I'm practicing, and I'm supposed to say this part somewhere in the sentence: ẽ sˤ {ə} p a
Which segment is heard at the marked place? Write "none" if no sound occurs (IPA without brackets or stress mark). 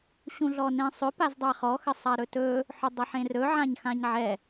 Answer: ʏ